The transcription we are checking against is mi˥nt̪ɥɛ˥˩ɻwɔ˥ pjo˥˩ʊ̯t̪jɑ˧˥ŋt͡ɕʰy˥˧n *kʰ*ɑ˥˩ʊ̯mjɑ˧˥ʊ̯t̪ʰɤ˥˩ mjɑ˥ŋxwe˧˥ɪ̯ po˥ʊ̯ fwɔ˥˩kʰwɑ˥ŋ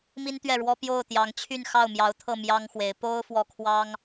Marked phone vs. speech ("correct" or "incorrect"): incorrect